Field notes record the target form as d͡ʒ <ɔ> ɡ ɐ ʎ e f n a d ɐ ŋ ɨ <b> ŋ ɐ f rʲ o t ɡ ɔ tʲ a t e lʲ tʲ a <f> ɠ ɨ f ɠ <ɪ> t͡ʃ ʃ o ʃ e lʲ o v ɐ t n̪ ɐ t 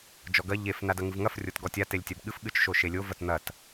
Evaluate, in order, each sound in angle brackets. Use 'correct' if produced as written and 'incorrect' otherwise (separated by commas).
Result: correct, incorrect, incorrect, incorrect